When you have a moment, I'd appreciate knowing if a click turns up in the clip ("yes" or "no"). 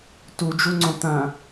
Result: yes